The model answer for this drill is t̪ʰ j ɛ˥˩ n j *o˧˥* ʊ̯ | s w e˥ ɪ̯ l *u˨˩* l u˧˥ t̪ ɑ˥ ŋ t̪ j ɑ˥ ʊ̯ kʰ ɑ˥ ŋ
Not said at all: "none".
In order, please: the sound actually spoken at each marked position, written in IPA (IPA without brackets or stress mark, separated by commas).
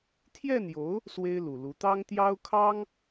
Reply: o˧˥, u˨˩